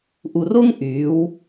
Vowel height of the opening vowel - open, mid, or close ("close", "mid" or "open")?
close